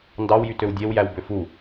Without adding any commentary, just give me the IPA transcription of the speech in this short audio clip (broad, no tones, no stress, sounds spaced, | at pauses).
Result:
n d ɑ w j y t ø w dʲ e w j æ w b ø f u